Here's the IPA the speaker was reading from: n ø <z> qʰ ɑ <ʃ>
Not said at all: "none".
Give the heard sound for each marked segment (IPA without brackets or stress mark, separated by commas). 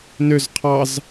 z, z